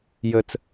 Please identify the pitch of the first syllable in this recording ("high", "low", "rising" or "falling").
low